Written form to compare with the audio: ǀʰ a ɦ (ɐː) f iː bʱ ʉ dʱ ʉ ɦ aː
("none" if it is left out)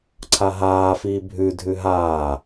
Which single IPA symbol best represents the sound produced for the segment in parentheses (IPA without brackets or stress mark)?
aː